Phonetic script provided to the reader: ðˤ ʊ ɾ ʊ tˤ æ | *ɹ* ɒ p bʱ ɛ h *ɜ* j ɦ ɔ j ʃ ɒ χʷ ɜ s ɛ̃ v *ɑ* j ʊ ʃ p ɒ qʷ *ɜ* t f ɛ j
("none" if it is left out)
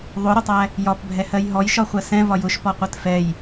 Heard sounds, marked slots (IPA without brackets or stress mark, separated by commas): j, ɜ, ɒ, ɜ